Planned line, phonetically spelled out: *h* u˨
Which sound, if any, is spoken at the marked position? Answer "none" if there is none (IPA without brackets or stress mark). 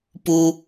p